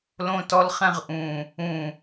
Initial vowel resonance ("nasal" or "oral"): nasal